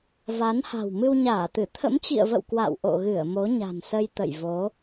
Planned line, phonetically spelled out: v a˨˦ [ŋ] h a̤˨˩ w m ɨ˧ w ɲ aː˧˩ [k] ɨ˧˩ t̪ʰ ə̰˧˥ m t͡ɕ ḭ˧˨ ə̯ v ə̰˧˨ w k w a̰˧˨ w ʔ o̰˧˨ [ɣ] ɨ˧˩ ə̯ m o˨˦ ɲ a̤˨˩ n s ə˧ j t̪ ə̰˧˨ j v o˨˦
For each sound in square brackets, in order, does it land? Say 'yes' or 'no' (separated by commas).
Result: no, no, yes